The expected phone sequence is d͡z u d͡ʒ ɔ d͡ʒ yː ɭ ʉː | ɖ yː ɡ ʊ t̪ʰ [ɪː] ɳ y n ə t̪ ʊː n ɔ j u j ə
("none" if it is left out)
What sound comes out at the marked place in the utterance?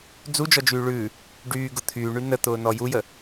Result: yː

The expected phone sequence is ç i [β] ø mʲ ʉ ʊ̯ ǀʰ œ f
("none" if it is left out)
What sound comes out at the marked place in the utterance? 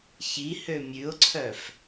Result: h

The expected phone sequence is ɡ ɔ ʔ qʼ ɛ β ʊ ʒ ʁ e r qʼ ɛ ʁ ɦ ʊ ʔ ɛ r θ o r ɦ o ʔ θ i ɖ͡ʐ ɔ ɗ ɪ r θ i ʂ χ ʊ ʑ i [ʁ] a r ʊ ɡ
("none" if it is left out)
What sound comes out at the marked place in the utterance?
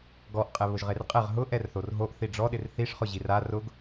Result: r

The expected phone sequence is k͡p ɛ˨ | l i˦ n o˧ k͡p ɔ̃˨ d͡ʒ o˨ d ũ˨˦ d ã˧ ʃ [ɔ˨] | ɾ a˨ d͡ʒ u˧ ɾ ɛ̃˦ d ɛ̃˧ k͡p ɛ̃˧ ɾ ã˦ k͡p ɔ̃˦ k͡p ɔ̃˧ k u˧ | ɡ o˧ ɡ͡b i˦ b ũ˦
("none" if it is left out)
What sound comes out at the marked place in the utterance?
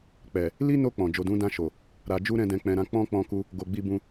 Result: o˨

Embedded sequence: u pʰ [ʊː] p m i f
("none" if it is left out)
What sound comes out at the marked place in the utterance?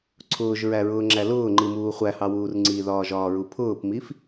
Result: ʊː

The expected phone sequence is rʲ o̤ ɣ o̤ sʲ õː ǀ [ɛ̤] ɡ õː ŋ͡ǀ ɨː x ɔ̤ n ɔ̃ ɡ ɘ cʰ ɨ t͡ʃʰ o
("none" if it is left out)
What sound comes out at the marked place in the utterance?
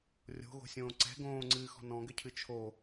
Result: ɛ̤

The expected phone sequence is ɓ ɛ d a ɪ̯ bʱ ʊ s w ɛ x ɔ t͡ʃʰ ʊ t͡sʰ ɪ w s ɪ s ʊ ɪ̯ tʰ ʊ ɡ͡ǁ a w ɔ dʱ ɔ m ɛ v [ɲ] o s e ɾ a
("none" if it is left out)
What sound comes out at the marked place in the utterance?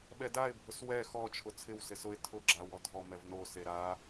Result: n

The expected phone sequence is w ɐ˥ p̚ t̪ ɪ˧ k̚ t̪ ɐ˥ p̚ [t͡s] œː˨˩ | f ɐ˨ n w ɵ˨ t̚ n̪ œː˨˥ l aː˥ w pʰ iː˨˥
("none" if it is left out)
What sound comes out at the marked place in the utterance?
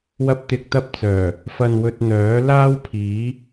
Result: t͡s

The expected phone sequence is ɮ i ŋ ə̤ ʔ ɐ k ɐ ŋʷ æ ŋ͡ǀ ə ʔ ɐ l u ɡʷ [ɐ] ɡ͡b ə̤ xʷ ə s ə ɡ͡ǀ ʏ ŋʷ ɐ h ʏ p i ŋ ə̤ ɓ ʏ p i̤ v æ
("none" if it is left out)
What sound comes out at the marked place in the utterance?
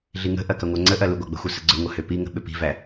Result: a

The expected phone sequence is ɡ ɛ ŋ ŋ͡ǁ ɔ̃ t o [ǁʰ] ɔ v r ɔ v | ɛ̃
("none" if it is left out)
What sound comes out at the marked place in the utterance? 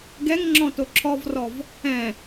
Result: ǁʰ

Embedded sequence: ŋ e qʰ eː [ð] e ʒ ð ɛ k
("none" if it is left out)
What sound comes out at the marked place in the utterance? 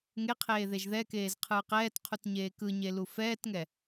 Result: ð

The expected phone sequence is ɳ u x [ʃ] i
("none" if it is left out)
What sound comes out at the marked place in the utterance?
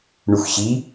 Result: ɕ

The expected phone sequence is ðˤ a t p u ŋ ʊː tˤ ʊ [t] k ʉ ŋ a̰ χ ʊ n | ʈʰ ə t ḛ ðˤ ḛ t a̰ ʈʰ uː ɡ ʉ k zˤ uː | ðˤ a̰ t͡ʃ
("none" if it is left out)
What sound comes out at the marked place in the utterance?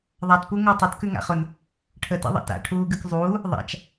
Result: t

